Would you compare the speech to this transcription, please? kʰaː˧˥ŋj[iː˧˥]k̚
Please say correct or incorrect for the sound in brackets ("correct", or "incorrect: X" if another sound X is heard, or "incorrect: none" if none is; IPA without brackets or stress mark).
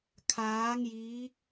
correct